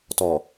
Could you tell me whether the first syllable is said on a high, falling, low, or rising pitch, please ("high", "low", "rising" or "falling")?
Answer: low